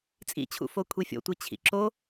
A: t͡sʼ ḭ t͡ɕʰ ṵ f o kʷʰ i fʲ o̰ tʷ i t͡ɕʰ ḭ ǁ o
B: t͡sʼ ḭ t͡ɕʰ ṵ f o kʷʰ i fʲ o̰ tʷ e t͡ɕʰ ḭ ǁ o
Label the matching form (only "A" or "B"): A